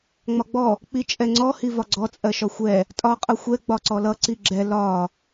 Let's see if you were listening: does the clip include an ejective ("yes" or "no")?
yes